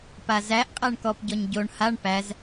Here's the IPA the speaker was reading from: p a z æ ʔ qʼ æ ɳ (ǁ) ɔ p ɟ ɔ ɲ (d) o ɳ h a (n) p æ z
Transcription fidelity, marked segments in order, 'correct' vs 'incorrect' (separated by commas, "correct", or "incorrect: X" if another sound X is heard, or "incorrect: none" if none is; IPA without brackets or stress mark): incorrect: k, incorrect: ɟ, incorrect: ɳ